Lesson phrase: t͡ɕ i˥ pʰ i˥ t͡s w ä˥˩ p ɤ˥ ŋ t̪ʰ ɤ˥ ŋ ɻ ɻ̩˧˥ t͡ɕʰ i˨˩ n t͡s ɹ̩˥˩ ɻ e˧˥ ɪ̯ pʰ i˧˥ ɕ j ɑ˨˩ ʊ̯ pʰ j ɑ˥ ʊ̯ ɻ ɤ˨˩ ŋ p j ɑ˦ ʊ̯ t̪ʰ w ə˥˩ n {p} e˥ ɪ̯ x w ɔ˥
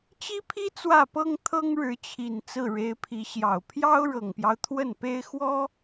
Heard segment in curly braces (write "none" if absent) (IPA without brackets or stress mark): p